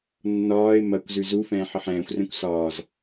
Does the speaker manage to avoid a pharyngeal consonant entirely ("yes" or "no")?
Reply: no